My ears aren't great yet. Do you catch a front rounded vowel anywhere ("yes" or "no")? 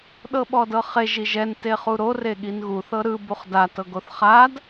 no